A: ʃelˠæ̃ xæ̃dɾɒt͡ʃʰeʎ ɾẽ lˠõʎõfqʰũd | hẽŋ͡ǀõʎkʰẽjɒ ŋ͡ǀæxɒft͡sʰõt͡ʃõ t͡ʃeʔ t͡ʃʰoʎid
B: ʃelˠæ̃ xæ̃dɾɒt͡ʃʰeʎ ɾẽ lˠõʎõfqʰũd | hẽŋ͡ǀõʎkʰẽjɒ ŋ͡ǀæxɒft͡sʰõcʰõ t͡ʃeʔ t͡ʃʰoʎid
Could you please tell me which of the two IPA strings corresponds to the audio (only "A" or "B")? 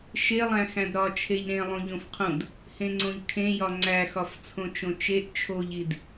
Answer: A